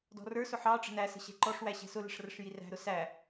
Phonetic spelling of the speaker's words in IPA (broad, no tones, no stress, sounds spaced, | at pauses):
d ɔ̤ r ə˞ s ʊ ħ ɑ ʈ͡ʂ ə̤ n æ s ə̤ ɕ ɛ̤ ǃ ɔ ʂ w æ ɕ ɛ̤ s ʊ l ə̤ ʂ r ə ʂ j i r æ̤ ɾ ʊ s æ